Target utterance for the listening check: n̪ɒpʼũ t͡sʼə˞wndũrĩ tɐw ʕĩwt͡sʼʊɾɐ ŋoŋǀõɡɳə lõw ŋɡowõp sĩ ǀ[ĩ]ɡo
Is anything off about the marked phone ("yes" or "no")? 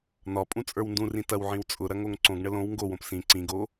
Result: no